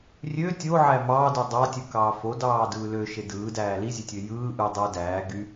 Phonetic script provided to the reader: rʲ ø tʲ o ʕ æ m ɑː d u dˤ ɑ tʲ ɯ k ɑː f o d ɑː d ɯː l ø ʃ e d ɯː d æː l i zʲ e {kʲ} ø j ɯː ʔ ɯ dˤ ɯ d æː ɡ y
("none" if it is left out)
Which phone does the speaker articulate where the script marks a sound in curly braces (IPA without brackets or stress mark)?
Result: tʲ